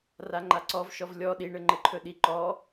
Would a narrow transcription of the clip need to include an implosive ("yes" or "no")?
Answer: yes